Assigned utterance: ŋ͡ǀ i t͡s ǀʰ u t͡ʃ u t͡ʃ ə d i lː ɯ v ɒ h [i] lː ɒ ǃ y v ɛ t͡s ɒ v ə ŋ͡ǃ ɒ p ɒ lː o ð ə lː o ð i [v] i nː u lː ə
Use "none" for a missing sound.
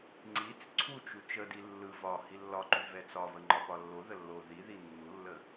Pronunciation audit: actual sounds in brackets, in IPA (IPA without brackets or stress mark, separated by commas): i, ð